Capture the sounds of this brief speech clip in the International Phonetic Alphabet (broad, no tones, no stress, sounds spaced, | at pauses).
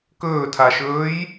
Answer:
k ɵː tʰ a ʃ ɵː j